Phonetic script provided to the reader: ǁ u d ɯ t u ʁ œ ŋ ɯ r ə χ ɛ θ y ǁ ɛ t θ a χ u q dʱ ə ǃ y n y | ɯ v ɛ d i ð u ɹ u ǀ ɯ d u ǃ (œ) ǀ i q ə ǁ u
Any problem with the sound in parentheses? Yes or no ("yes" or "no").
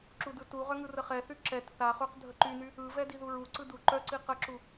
no